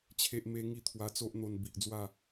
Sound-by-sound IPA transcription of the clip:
t͡ɕʰ e˦ ʔ m e˦ ŋ i˥˧ t̪ʰ w a˧ t͡s o˦ ʔ n̪ o˧ n b i˨ ʔ d͡z w a˥˧

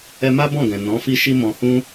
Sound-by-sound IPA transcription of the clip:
ɛ˧ m a˦ b ɔ̃˦˨ ɡ ɛ̃˨ n ɔ̃˨˦ f i˦ ʃ i˦ m ɔ̃˧ h ũ˦

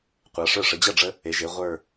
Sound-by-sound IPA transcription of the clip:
qʷ a˩˧ ʂ ə˞˧˩ ʂ ə˩˧ d͡ʑ ɐ˥˩ ɖ͡ʐ ə˧ | e˩˧ ʒ e˩˧ ʁʷ ə˞˧˩

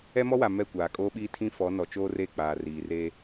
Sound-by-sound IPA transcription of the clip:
ɛ˦ m ɔ˦ w a˨ m ɛ˦˨ kʷ aː˨ kʼ oː˦ ɓ iː˦ tʰ ĩ˦ f ɔ˨˦ n ɔ˨ t͡ʃ oː˦ r e˦˨ k͡p aː˨ r iː˨ r e˦

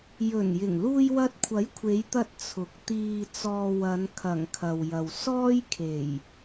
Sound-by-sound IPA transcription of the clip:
j ɵ˨˩ n j ɪ˨˩ ŋ l uː˧ j w ɐ˧ t̚ kʷʰ ɐ˨˥ j kʷʰ e˨˧ j t̪ ɐ˧ t̚ t͡sʰ ʊ˨˥ k̚ t̪ iː˨ t͡s ɔː˧ w ɐ˨˧ n kʰ ɐ˨˩ ŋ kʰ ɐ˨ w j ɐ˨ w s ɔː˥ j kʰ e˨˩ j

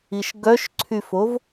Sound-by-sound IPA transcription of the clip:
i ʃ ɡ œ ʃ ǀʰ y f o v

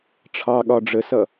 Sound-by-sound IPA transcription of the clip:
ʈ͡ʂʰ ɑ ɠ ɒ ɖ͡ʐ ə s ʌ

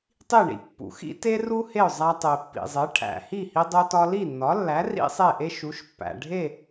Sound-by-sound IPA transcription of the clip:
tˤ i˥˩ ɳ ḭ˥ pː ṵ˩˥ x ḭ˥ t e˥ r u˥ h e˥˩ ʊ̯ zˤ æ˧ tˤ e˩ pː ḭ˩ zˤ e˩˥ ʈʰ æ̰˩ h i˥˩ h i˧ dˤ o˧ t ɒ˧ l i˥˩ nː ɒ˩˥ lː æ˩˥ r ḭ˥ sˤ e˥˩ ʔ e˥ ʃ u˩˥ ʃ pː æ̰˩ ɖʱ e˥˩

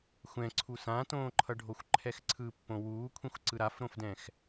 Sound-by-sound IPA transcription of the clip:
xʷ ɛ̃ ǀʰ u s ã t õː ǃʰ ʌ ɖʱ o xʷ ǃʰ ɛ x ǀʰ ɯ pː õ w uː kʷʰ ĩ xʷ ǀ ɯ ɾ a f ɾ õ f d ɛ̃ x

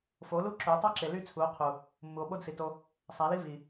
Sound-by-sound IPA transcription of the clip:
f o˨˦ l u˦ ǁ ø˨˦ tˤ ɑ˦ ǁ e˨ l y˧ t͡sʰ u˨˦ o̯ qʰ u˨ | mː u˨ o̯ ɓ o˦ d s i˨ t o˧ | sˤ æ˨˦ l i˦ v i˨

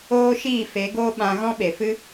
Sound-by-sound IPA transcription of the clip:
oː˦ ʃ iː˦˨ f e˨˦ ɡ oː˦ ɓ ã˧ ɣ ɔ̃˦ ɓ e˨ f ɨ˦

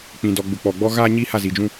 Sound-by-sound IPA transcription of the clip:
k͡p ĩ˨ d ɔ˨ ɡ͡b ʊ˨ k͡p ɔ˨ ɡ͡b ɔ˦ ɣ aː˦ ɲ i˦ h a˦˨ z i˨ d͡ʒ ũ˦

